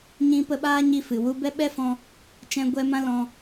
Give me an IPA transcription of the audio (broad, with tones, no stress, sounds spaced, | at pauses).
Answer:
ɲ ĩ˧ p ə˧ ɓ aː˦ ɲ i˧ f ɨ˨ w u˧ b ɛ˦ ɓ ɛ˦ f ɔ̃˧ | t͡ʃ ɛ̃˧ ɡʷ ɛ˧ m ã˦ l ɔ̃˧